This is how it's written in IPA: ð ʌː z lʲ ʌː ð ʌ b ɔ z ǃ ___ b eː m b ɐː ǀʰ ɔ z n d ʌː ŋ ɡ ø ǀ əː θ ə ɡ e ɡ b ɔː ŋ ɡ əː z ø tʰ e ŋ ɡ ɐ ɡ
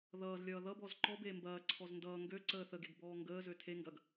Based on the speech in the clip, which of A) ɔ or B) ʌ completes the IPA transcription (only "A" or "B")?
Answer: A